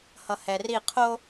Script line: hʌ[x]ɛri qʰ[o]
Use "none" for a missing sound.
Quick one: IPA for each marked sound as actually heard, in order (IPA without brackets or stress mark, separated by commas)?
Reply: h, o